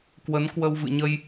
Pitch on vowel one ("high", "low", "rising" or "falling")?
rising